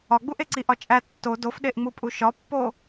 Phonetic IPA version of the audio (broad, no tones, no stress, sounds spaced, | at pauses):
ɒ ɡ͡b u ʔ e ǀ i ʔ ɒ t͡ʃʼ æ tː o d o f ɗ e ʔ ŋ͡m u pʼ u ʃ ɒ pː o